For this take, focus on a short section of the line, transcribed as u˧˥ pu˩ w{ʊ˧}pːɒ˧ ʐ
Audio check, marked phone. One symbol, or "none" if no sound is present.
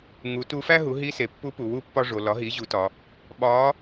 u˧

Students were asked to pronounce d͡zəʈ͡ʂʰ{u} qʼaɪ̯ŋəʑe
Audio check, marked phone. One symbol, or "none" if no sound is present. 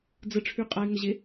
y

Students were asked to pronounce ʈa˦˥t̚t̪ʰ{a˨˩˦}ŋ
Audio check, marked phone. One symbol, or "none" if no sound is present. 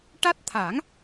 a˨˩˦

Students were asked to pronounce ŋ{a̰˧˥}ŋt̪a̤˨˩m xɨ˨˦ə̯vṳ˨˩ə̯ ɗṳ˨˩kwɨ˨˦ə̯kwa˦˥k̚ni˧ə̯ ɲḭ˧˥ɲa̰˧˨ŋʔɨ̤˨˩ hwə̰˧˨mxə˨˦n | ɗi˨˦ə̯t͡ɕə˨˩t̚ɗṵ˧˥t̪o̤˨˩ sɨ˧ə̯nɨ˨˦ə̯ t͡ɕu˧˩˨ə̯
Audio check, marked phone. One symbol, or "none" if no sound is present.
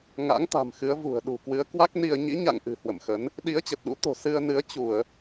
a̰˧˥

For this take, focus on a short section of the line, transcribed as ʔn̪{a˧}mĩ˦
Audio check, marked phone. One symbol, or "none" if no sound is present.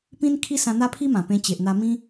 a˧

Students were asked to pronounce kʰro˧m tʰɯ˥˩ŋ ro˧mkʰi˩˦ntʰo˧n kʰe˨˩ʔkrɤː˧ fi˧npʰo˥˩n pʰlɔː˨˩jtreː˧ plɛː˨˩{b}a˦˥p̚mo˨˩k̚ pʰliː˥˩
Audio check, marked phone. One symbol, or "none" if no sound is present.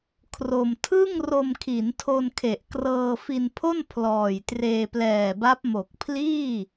b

